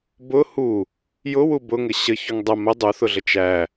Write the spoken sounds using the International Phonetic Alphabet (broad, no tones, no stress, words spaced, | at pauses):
bʊ hu | jʊwu bʊŋɘ ɕəçuŋ dˤə mɘ dˤuθʊɮə t͡ʃæ